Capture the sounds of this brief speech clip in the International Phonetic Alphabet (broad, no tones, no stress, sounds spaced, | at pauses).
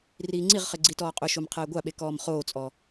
r iː ŋ͡ǀ i ʁ χ ɪ ɡ͡ǀ i t ɔː qʼ ʊ ʃ o m qʰ ɛː ɡʷ a ɓ e k ɔː m χ oː t͡sʼ ɔ